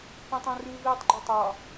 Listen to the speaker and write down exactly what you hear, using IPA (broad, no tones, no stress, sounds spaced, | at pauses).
pʲ õ tˤ õ r ʉ v iː tˤ ɡ͡ǃ ɵ tˤ ɑ